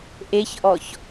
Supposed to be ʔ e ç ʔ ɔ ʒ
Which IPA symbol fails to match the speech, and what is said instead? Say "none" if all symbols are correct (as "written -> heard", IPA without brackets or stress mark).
ʒ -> ç